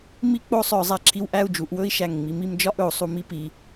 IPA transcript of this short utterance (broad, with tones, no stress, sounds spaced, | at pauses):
m i˥˧ k͡p o˥˧ sˤ œ˧˩˧ zˤ æ˧ ǁʰ i˧ w ʔ æ˥˧ u̯ d͡ʒ u˩˧˩ ʔ w ɵ˥˧ i̯ ʃ æ˧˩ ŋ ŋ͡m i˩˧˩ m i˥˧ m d͡ʒ ɒ˥˧ ʔ ɵ˧˩˧ u̯ sˤ u˧˩˧ m i˥˧ p i˩˧˩